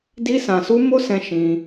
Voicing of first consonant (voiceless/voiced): voiced